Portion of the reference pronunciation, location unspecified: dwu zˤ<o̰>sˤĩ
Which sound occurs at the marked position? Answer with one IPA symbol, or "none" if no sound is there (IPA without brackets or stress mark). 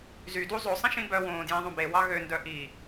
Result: o